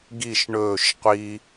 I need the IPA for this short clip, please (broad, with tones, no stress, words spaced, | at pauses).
ɡi˦˨ʃɳɵː˦˨ʃ qʷi˧